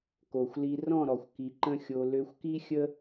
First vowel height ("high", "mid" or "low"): mid